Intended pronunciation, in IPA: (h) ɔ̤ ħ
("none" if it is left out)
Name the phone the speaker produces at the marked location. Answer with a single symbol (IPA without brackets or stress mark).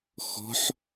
x